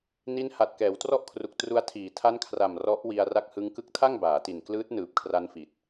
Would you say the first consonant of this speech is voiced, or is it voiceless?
voiced